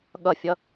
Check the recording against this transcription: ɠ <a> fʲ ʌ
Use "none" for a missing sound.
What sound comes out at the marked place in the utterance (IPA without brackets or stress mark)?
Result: ʌ